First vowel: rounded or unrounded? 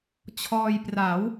rounded